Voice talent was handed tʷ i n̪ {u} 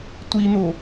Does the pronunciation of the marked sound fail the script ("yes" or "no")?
yes